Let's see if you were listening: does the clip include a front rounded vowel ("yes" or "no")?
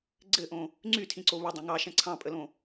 yes